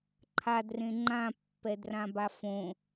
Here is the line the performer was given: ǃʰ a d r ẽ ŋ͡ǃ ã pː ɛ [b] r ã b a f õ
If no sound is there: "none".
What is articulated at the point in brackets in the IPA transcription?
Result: d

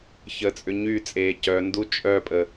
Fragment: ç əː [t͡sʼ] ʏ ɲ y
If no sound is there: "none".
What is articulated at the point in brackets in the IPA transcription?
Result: t͡sʼ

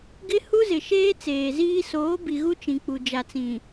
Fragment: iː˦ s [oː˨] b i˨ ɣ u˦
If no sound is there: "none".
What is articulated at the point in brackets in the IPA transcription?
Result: oː˨˦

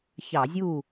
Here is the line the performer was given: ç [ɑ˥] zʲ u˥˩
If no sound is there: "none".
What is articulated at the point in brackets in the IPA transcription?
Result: ɑ˧˩˧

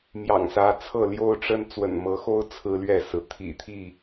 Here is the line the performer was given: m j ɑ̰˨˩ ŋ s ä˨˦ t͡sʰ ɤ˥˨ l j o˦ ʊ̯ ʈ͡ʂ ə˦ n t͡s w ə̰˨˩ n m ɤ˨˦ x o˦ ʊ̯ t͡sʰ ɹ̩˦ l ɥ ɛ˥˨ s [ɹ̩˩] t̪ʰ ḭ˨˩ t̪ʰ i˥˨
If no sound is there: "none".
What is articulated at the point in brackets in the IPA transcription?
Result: ɹ̩˩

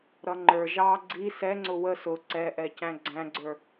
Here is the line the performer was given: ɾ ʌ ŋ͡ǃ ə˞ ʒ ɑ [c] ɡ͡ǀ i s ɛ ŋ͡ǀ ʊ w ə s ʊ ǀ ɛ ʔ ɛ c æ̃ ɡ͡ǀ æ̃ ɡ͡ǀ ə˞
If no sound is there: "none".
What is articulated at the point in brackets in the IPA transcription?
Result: none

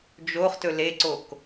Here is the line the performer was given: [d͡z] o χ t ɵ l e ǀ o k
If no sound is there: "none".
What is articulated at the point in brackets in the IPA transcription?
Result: d͡ʒ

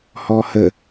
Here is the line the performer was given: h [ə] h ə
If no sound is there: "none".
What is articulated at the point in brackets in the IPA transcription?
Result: ɔ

